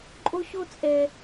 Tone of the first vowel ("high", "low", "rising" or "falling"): high